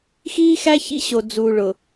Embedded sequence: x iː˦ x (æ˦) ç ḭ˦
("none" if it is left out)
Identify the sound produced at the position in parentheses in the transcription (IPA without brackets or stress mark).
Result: æ˦